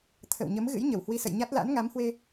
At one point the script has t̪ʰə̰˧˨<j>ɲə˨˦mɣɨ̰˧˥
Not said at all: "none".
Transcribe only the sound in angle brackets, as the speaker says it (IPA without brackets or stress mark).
w